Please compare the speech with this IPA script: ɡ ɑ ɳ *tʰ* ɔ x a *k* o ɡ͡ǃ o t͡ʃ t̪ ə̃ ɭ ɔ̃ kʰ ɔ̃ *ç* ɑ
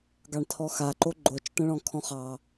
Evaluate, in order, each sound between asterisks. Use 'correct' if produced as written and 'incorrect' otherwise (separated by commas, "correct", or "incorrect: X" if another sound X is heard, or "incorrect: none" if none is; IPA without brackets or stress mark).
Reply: correct, incorrect: ǃ, incorrect: χ